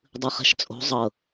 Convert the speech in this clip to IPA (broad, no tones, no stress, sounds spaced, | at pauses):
dˤ ɯ χ ɛ̤ ʃ t͡sʼ o̤ zˤ ɤ